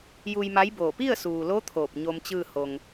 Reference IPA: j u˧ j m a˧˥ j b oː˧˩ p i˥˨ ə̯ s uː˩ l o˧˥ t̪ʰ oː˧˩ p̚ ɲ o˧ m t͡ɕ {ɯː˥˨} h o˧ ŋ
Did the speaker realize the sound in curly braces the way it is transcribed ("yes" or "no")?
yes